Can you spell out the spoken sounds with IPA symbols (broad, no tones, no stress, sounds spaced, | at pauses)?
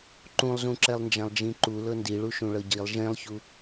ǃ ũ lˠ z ũ ǁ ɛ lˠ n d͡ʒ ã lˠ d͡ʒ ĩ ǃ u l ɤ n d i ɭ u ʃ ũ ɭ ɤ ɟ i lˠ ʒ ẽ lˠ ç u